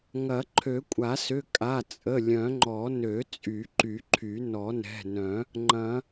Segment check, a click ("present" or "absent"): present